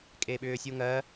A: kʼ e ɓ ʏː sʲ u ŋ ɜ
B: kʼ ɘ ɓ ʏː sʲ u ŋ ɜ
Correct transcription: A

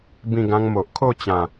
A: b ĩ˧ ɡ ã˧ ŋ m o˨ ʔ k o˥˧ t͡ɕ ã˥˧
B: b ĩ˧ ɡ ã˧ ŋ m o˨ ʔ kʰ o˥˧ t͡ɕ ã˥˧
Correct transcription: B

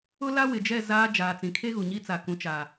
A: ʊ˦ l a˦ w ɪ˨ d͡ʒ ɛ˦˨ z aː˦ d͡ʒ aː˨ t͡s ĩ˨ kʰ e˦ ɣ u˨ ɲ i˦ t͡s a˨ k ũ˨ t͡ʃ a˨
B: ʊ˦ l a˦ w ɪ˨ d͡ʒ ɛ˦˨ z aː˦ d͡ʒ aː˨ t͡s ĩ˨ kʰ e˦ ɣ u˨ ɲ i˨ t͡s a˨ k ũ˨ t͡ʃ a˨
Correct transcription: A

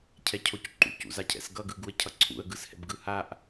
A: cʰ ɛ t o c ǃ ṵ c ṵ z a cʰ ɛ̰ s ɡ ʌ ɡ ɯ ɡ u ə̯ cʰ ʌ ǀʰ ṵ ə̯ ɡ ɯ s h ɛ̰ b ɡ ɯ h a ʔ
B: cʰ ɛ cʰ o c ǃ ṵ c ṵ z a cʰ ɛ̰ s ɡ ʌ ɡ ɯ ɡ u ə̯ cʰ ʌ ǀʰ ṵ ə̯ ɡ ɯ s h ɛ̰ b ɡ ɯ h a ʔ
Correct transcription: B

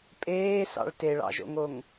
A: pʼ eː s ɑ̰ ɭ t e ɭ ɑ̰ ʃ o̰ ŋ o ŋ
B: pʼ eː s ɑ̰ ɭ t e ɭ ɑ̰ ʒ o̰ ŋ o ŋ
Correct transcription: B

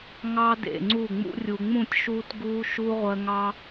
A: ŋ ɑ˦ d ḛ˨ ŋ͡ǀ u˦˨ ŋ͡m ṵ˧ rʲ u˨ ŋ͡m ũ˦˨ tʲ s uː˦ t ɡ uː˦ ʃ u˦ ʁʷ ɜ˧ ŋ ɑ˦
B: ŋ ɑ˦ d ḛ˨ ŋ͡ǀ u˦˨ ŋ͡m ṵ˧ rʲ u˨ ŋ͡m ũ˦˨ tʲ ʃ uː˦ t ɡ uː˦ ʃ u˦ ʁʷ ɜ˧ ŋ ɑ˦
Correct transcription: B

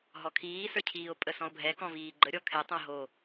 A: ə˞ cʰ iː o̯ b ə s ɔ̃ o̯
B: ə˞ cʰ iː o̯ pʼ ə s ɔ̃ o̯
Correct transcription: B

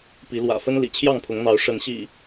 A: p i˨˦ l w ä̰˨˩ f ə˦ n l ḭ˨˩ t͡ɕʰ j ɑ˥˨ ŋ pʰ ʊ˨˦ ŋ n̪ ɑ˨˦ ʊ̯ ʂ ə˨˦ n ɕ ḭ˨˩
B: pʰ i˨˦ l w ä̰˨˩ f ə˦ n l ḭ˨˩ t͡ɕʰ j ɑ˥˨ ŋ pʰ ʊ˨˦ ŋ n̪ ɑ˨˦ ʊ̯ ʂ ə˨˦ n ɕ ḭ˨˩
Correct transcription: A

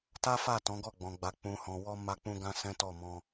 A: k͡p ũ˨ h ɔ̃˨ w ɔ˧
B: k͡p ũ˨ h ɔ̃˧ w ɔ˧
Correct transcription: A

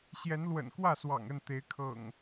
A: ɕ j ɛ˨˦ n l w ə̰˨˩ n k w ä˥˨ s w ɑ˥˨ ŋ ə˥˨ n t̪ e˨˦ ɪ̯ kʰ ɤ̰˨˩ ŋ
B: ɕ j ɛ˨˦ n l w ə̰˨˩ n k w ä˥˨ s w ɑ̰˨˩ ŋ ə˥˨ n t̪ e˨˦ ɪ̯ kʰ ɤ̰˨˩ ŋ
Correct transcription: B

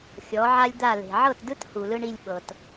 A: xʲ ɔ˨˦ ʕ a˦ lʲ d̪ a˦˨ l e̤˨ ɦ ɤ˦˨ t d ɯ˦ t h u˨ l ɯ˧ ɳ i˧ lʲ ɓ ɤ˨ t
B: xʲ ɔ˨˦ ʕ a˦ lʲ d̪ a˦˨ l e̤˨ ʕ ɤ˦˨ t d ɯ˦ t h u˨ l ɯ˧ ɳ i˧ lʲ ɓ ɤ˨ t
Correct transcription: B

